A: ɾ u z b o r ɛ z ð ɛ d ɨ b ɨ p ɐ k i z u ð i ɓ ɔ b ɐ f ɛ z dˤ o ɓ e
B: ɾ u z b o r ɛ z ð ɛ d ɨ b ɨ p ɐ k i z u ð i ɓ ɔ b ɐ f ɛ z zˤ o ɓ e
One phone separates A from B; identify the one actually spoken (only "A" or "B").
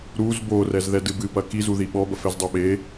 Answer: A